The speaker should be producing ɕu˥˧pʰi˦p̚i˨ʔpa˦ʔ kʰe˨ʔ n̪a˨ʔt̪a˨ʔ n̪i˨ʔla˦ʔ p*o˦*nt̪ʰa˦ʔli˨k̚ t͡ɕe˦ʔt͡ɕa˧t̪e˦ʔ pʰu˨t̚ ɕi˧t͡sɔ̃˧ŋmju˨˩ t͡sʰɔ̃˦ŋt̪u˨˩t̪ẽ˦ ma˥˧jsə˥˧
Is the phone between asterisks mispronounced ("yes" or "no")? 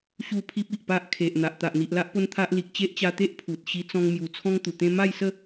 no